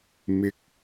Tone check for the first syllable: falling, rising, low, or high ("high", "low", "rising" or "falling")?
low